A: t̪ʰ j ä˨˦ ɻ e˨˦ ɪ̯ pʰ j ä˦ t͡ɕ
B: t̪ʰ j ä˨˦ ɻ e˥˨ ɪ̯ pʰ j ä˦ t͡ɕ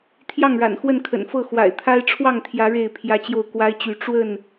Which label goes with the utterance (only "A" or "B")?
B